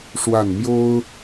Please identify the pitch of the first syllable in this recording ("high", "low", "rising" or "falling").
falling